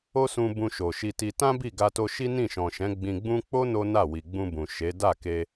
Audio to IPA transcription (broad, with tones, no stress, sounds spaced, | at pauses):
o˦ s ũ˧ b ũ˧ ʃ o˨ ʃ i˧ t i˧ t ã˦ b i˦˨ ɡ a˧ t o˧ ʃ i˦ n ĩ˦˨ ʃ ɔ̃˨ ʃ ɛ̃˨˦ ɡ͡b ĩ˧ ɡ͡b ũ˦ k͡p o˦ n o˦ n a˦˨ w i˨ ɡ͡b ũ˧ b ũ˨ ʃ e˨˦ d a˦˨ k e˧